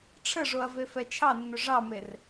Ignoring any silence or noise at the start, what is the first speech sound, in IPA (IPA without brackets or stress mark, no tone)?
ʈ͡ʂʰ